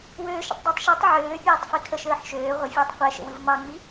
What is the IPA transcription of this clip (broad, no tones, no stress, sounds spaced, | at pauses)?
w øː ʃ ə̰ tˤ dˤ ə tˤ ʃ ɯ tˤ ʕ øː pʲ eː tˤ f i kʰ ə ʃ əː ħ ʃ øː ʁʷ ə fʲ əː tˤ qʷ ɛ ʃ ə̰ w ɯ v m ɑ ŋ͡m i